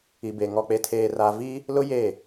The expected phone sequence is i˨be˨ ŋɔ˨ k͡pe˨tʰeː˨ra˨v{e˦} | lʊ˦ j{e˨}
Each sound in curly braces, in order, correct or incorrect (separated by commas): incorrect, incorrect